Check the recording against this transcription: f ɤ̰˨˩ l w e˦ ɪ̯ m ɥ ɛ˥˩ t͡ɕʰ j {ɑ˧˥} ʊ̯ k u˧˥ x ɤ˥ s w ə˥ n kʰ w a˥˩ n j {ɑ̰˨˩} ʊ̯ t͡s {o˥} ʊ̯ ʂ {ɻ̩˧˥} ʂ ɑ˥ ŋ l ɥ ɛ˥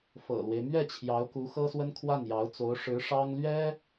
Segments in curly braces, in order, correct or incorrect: correct, incorrect, incorrect, correct

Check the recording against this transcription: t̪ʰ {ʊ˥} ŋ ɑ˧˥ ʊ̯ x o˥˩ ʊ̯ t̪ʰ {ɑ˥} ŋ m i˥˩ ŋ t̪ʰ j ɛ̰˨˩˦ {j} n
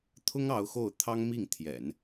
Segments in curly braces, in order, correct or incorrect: correct, correct, incorrect

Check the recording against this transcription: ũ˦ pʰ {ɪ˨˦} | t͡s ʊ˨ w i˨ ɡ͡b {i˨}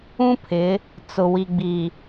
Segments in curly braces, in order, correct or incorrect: correct, correct

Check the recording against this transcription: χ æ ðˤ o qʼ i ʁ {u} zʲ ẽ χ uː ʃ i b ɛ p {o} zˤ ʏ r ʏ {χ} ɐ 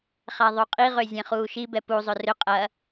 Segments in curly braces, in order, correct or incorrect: incorrect, incorrect, incorrect

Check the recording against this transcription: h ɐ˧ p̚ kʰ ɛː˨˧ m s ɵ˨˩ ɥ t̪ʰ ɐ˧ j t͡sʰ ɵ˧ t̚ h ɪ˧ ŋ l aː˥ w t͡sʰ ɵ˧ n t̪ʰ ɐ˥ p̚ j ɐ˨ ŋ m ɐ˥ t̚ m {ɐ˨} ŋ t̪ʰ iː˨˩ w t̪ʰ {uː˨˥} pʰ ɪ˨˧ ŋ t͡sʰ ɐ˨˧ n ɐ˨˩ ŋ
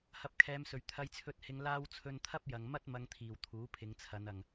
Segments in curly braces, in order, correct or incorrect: incorrect, correct

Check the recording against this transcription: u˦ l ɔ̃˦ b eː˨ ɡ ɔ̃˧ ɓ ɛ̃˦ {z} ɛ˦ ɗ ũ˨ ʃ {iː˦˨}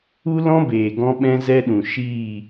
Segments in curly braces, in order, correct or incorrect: correct, correct

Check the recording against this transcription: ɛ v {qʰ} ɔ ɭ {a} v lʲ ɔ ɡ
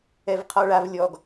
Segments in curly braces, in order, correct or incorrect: correct, correct

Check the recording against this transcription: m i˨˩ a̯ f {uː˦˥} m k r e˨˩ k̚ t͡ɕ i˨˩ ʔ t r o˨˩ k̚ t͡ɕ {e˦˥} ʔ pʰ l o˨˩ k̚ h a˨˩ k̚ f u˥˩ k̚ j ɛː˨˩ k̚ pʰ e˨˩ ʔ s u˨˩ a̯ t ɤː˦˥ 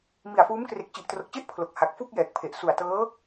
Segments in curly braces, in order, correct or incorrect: correct, incorrect

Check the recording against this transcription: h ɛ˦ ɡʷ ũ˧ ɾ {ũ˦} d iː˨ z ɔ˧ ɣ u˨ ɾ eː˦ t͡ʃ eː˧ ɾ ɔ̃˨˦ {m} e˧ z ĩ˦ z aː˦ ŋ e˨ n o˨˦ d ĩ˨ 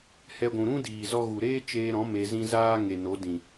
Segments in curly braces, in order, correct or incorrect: correct, correct

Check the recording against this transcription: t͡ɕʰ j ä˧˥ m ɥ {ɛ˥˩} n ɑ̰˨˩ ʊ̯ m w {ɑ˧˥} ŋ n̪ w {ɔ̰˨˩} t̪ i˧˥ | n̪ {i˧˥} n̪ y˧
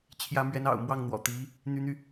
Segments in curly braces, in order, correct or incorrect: incorrect, incorrect, correct, incorrect

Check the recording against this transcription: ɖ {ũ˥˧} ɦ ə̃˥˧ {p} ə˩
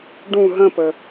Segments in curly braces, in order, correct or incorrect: correct, correct

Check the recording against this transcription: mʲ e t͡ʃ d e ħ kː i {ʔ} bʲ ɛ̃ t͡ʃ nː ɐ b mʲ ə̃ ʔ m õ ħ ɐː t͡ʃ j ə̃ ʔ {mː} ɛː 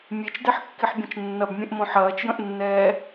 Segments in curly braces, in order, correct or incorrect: incorrect, incorrect

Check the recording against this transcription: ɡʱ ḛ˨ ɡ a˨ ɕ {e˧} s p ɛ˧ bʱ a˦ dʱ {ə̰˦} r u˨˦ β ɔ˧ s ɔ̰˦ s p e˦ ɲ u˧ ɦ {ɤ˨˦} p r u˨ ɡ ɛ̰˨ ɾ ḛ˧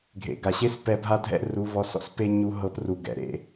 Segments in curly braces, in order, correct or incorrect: incorrect, incorrect, correct

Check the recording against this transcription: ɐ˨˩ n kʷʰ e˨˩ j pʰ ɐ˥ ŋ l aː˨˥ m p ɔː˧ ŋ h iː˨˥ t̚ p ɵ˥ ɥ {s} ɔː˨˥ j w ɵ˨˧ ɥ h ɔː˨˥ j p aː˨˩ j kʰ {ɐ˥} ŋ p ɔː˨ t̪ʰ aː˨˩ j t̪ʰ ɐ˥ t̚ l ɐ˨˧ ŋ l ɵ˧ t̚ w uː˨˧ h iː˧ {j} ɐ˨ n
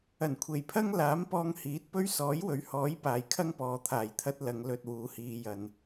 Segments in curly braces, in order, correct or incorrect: correct, correct, correct

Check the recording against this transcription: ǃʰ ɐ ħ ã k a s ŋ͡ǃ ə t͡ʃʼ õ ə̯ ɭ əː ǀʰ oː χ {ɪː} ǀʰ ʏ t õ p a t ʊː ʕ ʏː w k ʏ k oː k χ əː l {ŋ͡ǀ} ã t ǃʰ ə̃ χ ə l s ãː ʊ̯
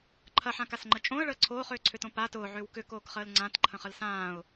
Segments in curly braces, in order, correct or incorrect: incorrect, correct

